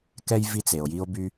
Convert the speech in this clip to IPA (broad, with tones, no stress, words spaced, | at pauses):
kɛ˥j vi˦t͡se˩o̯ ji˦o̯by˦